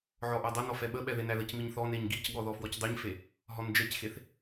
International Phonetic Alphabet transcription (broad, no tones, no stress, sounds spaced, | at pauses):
ʕ ɔ ʔ æ dˤ ɐ n ɔ f ɛ ɓ ə ɓ ɛ ð e n æ ð ə c m i ɲ θ ɔ n e ɲ ɡ i c ɠ ɔ ð ɔ f w ɔ c dˤ e ɲ f e | ɦ ɔ n d͡ʒ ɛ c x e θ